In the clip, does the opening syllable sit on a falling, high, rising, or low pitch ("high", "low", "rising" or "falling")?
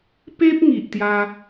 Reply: high